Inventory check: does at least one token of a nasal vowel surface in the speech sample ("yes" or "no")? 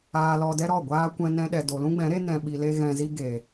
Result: yes